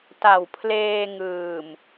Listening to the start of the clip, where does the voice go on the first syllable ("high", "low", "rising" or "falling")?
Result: low